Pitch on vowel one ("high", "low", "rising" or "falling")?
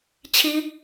high